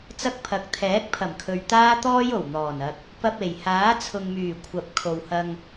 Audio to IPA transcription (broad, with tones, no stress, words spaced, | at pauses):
t͡sɐ˥k̚pʰɐ˨˥k̚ t̪ʰɛː˨˥k̚pʰɐ˨˩mkʰɵ˨ɥ t̪aː˥t̪ɔː˥jo˨˩w n̪ɔː˨˩nɐ˧k̚ | pɐ˧p̚ e˨˩jhaː˨˥t͡sʰʊ˨ŋmyː˨˩ kʷʰɐ˨p̚ kʰo˨whɐ˧ŋ